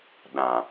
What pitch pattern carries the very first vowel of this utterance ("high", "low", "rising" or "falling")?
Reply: low